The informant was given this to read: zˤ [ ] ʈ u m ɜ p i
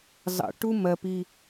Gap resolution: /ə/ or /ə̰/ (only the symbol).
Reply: ə̰